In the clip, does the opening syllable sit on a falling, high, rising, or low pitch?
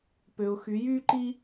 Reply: low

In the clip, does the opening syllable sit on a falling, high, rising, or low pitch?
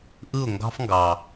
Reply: falling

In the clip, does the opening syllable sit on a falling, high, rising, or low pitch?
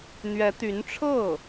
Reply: rising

